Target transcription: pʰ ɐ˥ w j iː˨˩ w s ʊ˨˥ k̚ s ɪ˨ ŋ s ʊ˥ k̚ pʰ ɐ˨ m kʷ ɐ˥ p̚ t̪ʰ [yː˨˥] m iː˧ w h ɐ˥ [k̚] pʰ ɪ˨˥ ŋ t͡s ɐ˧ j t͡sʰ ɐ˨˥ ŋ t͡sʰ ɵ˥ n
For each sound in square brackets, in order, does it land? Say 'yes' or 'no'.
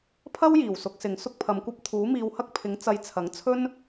no, yes

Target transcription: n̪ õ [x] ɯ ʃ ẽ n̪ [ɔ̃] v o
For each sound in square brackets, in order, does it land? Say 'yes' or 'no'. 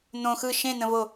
yes, no

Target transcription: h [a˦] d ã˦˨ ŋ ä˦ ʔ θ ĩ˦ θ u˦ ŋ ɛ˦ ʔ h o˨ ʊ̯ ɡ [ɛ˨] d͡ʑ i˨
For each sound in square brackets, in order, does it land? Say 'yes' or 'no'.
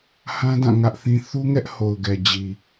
no, yes

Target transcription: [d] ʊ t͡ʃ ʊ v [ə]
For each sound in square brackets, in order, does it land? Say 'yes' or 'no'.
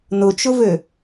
no, no

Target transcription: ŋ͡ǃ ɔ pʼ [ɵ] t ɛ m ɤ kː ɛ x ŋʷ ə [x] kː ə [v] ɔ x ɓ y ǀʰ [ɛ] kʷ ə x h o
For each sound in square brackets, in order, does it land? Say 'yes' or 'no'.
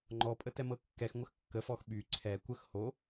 no, yes, no, yes

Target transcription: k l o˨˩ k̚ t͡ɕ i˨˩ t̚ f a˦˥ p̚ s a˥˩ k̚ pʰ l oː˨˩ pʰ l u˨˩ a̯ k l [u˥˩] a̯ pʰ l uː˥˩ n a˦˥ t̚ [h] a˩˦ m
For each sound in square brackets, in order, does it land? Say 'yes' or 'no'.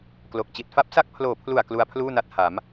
no, yes

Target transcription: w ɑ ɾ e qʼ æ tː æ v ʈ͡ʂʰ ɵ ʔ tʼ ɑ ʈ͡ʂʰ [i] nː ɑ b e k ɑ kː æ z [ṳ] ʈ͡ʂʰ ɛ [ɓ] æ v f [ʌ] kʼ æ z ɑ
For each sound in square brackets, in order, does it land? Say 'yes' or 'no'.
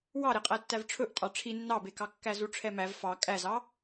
yes, no, no, no

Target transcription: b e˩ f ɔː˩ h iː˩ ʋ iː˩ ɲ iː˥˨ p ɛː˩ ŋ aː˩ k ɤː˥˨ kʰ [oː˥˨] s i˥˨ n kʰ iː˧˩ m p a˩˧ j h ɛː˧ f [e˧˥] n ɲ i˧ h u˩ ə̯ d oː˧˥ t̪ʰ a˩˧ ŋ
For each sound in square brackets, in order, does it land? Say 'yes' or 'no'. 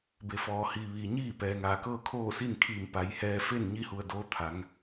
yes, no

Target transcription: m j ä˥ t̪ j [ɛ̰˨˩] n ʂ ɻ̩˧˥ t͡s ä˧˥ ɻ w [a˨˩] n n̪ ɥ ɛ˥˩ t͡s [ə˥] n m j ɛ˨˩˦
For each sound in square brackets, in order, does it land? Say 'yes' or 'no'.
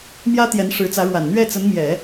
no, yes, no

